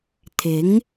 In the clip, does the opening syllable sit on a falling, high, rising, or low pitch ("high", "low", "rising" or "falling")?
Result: rising